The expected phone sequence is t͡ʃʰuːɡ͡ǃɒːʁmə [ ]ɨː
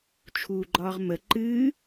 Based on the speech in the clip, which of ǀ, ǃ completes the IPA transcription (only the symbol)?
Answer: ǃ